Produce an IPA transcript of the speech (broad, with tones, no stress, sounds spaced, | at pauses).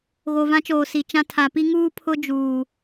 ɣ o˨ v ã˦ t͡ʃ oː˨ s i˨ t͡ʃ ã˦ tʰ a˨ p i˦ ŋ uː˦ pʰ ʊ˦ d͡ʒ uː˨